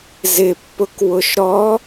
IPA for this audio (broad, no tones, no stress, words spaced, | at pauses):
zɪpːʊk wʊʃɾɔ